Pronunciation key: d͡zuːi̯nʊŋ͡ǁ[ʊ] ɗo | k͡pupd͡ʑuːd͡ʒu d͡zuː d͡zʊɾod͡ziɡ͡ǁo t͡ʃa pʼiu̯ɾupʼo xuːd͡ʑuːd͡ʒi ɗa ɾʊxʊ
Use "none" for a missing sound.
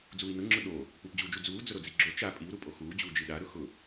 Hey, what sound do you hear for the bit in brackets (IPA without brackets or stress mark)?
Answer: ʊ